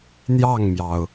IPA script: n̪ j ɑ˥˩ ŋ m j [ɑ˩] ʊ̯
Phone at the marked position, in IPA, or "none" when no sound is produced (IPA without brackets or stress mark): ɑ˩